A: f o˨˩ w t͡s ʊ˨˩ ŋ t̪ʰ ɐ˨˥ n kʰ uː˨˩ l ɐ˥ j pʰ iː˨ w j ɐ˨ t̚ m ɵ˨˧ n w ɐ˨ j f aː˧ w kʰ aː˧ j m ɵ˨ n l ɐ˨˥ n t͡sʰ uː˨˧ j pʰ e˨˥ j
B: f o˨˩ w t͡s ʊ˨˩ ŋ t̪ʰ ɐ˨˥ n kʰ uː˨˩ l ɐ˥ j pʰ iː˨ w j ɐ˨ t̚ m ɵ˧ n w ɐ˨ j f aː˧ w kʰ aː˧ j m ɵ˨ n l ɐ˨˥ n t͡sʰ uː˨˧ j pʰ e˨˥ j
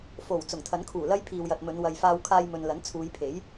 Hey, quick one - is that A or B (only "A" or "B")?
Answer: A